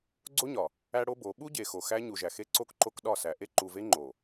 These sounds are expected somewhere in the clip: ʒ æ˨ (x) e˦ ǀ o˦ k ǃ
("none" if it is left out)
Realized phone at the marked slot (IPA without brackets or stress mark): x